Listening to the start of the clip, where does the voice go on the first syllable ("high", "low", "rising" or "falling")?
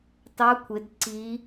rising